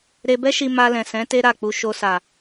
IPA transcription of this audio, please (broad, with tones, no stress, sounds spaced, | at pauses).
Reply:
ɾ e˧ b ɛ˦ ʃ i˧ m a˧ l ɛ̃˨ s ɛ̃˨˦ t e˦ ɾ a˦˨ k͡p u˧ ʃ o˧ s a˨